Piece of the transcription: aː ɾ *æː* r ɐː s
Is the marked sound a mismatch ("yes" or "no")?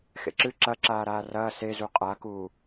yes